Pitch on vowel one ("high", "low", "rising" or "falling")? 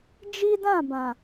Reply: high